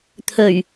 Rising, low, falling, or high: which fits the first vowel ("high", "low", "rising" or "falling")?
low